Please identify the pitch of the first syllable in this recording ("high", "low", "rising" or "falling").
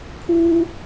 high